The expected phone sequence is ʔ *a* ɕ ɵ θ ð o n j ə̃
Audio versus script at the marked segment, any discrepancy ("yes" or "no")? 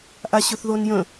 no